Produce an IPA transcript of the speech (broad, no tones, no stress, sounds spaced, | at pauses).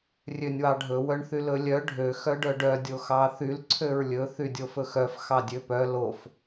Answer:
rʲ ø nʲ w ɑ ɖʱ ɵ w œ ɳ θ y l ɵ lʲ œ ɖʱ ø x œ ɖ œ ɖ œ dʲ o x ɑ θ y l ǀʰ ø ɹ lʲ ɵ θ y dʲ o f ɵ x œ f x ɑ dʲ ø p œ l o f